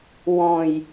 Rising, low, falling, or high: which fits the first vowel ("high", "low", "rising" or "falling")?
low